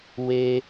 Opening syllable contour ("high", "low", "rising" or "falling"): high